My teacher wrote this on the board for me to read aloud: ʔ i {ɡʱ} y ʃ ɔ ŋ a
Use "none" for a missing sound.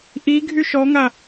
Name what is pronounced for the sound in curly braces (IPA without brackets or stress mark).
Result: ɡʱ